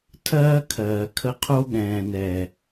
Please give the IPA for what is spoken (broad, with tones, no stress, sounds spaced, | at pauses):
tʰ ɜː˦ kʰ ɜː˨ kʰ ə˦ qʰ o˦ ɠ ɛ̃ː˨ n ɛ˨